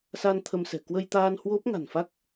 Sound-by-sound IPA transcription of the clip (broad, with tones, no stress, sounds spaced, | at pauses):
s a˧ n t̪ʰ ə˧ m s ɛ̤˨˩ k w ə˧ j t̪ aː˧ n h w o˦˥ p̚ ŋ a̤˨˩ n f a˦˥ k̚